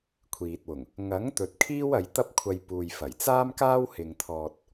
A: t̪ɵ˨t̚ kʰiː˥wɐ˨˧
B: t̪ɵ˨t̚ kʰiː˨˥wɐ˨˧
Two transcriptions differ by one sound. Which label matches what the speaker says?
A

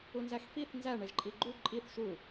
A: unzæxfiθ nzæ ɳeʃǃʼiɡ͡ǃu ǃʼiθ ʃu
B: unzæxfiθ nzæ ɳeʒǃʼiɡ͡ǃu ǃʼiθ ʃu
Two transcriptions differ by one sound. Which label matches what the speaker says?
B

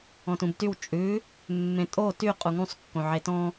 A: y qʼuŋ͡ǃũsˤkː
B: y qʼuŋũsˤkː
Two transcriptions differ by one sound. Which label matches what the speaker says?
B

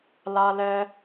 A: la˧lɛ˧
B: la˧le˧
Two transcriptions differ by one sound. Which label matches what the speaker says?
A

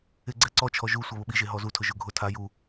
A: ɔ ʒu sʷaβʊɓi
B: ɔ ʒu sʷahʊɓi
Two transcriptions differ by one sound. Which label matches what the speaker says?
A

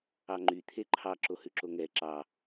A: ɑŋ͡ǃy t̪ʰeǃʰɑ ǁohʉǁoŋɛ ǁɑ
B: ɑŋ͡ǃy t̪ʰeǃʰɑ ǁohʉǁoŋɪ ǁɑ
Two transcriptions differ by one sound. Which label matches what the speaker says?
A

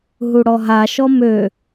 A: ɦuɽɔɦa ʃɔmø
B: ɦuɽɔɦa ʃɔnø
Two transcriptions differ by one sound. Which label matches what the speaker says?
A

